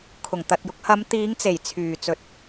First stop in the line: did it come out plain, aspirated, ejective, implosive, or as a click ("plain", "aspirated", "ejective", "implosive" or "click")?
aspirated